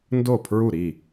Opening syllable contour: falling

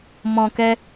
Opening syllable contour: low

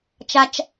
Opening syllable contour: low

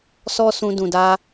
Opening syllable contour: high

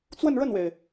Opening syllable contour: falling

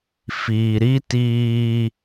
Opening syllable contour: low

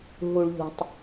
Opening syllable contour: low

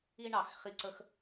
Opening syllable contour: high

